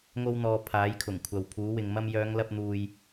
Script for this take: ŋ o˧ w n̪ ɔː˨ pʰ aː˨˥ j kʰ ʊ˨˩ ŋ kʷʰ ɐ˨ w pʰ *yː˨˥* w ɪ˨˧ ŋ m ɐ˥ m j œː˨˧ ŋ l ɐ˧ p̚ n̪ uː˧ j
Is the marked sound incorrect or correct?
incorrect